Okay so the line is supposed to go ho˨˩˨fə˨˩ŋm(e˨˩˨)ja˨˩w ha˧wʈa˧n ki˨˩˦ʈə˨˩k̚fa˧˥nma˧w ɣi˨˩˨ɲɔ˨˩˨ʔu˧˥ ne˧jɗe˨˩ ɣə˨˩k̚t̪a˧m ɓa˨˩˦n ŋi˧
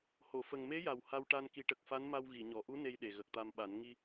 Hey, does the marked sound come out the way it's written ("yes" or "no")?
no